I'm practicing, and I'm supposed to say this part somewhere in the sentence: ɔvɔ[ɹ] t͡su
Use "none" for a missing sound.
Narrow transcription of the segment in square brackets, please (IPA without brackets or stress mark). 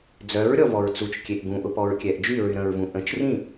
ɹ